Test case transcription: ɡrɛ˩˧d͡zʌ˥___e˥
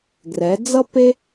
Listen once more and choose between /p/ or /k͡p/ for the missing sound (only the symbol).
p